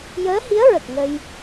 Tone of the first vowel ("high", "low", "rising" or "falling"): rising